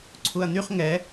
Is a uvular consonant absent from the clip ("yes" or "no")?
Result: no